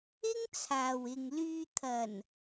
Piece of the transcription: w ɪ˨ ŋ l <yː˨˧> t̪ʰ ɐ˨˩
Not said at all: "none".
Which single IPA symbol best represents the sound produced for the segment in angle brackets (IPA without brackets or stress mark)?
yː˧